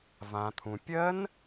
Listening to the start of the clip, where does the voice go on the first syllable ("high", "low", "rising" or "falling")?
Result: low